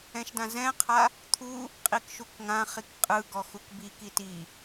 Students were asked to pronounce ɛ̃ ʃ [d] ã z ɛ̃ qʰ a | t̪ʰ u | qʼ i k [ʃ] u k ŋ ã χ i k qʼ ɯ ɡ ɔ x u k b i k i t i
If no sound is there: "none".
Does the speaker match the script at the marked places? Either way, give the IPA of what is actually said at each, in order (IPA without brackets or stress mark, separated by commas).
d, ʃ